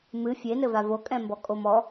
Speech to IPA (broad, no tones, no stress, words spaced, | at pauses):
mɨ fʲenɘva vokʼɛ̃mbɔ kʼomɔ